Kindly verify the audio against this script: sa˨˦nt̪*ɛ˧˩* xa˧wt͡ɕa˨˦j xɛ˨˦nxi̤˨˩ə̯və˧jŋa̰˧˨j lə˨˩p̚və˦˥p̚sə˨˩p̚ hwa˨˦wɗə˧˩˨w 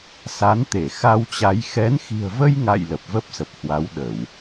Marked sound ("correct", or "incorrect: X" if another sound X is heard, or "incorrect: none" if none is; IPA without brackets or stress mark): incorrect: e˧˩